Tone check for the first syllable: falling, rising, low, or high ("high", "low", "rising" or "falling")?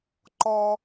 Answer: high